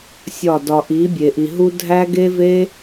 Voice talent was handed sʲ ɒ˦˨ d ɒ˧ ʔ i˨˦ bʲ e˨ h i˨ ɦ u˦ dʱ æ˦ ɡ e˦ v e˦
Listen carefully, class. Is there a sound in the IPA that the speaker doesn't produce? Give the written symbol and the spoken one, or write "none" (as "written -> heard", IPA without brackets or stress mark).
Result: h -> ʔ